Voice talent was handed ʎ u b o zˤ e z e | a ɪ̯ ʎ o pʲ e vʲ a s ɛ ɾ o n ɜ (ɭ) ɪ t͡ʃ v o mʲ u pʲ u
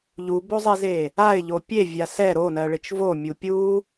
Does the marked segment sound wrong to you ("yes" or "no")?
no